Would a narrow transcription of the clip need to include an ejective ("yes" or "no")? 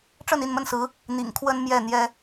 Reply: no